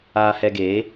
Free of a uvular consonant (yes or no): yes